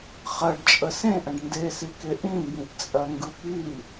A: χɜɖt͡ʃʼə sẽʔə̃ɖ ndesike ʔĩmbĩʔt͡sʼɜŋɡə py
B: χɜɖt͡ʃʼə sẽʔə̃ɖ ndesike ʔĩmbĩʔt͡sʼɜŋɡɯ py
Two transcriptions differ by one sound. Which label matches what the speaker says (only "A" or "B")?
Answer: B